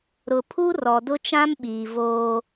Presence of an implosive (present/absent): present